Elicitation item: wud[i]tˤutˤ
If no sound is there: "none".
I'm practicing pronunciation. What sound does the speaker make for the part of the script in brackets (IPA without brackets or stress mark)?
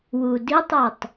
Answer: i